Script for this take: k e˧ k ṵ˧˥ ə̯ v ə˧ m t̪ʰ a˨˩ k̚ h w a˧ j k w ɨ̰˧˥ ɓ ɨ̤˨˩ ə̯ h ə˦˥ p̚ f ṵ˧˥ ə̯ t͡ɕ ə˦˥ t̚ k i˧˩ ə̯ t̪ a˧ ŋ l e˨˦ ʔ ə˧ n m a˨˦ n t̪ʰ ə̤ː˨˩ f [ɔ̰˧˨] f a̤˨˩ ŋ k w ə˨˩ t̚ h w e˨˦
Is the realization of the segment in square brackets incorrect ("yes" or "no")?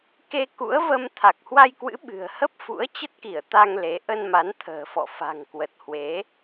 no